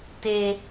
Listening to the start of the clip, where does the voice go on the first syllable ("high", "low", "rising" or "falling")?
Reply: high